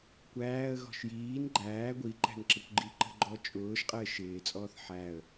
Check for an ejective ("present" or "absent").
present